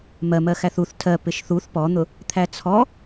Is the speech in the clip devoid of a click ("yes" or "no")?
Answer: yes